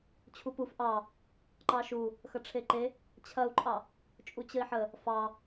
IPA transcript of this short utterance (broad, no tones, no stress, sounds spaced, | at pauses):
t͡ɕʰ u p u f ʔ ɑ | ǃ ɑ ʃ u | x ɐ ʈ͡ʂʰ e ǃ e | t͡ɕʰ ɐ u̯ ǃʼ ɑ | t͡ʃʼ u t͡ɕ ə i̯ ħ ə | f ɑ